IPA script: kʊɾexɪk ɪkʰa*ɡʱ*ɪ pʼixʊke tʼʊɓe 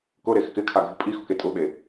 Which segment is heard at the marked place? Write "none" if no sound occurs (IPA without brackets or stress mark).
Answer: ɡʱ